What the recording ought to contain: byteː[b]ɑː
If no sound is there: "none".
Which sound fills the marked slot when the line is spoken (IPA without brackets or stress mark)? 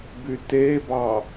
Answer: b